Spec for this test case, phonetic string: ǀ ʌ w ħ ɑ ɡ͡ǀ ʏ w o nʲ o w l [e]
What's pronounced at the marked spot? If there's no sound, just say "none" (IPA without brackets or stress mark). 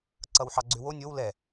ɛ